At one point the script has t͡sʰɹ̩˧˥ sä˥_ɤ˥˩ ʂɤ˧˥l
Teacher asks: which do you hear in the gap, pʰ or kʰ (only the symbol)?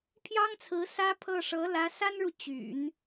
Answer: pʰ